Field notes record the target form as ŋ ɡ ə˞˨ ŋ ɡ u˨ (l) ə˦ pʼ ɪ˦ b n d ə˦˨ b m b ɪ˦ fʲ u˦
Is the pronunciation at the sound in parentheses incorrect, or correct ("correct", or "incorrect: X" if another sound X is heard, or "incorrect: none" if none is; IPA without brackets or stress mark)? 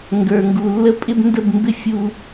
incorrect: lː